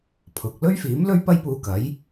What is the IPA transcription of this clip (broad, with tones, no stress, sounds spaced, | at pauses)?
pʰ ʊ˨ k̚ l ɵ˥ ɥ f iː˨˥ m l ɵ˥ ɥ p ɐ˥ j p uː˧ k ɐ˨˥ j